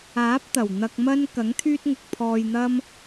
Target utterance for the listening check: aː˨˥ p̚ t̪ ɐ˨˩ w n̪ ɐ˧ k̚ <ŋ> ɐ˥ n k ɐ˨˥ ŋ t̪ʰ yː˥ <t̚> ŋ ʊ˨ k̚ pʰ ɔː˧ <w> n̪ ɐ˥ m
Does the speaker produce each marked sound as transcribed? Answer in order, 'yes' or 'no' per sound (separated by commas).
no, yes, no